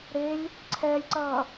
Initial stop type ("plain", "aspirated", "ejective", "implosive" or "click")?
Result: click